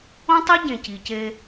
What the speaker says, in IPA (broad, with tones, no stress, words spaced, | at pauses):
õ˦tˤi˦ ɟẽ˨ci˨ce˦